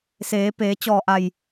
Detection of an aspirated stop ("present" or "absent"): absent